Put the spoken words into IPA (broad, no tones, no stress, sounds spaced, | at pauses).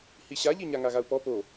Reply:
h i ɕ a ʎ i ɲ a ŋ a ɣ a u̯ p ɔ p o